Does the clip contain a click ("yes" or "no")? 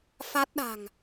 no